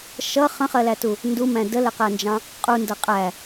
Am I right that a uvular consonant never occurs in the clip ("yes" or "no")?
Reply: no